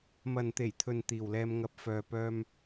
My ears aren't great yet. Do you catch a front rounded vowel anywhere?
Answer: yes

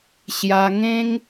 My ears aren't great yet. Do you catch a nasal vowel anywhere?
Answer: yes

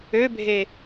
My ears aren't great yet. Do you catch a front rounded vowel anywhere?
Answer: yes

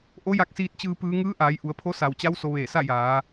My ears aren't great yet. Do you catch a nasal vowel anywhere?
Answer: no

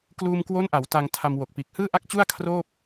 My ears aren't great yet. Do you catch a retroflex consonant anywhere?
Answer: no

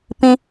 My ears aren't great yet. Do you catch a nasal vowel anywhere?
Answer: yes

